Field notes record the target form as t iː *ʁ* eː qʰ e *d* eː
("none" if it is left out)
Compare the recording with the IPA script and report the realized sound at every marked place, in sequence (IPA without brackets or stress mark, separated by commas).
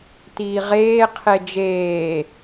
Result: ʁ, d͡ʒ